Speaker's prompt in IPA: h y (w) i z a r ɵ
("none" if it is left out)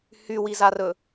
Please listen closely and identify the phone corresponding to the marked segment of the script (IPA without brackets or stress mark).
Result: w